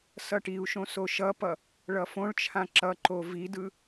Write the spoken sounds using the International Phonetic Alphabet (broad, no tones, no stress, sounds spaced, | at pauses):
s ʌ ʈ i u̯ ʃ õ s o ʃ ʌ p ʌ | ɭ ʌ f õ ɭ t͡ʃʰ ã ǁ ʌ ǃ o v i d ɯ